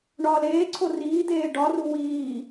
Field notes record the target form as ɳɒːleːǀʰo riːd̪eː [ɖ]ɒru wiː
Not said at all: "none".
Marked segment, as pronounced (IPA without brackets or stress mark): ɖ